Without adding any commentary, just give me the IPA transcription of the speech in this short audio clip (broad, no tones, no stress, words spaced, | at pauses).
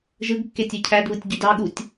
ʒɯɡkːetʲɯ cʰædβɯtʲɟyd ɑɠutʲ